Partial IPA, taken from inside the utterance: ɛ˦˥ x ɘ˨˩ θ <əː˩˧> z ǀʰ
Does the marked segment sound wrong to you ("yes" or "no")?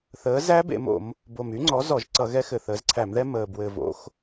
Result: no